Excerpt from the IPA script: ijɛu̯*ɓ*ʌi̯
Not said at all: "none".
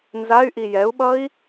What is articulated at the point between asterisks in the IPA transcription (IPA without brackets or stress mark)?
ɓ